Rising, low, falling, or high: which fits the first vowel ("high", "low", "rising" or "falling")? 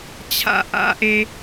high